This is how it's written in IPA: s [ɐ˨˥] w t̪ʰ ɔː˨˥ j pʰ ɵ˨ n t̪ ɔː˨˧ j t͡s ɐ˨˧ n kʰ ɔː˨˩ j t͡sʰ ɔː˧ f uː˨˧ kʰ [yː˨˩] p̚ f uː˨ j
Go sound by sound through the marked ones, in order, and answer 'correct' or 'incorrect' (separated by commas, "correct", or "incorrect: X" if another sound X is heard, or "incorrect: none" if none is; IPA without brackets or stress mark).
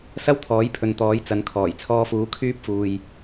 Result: incorrect: ɐ˥, incorrect: yː˥